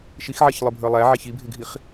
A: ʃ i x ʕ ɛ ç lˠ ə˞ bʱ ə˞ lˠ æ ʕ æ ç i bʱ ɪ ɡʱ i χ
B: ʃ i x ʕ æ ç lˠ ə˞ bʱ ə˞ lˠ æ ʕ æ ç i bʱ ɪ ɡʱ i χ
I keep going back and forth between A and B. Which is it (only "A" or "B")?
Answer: A